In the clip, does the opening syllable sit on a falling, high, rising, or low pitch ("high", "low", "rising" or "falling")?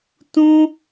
high